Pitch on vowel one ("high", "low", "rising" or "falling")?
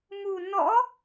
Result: low